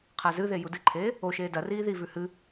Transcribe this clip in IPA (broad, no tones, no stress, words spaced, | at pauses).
qʰazɨðe judɨǃʰeː | oʃeː dɐriː ðivʉ hɨ